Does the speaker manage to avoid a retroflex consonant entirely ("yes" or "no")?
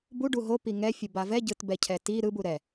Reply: no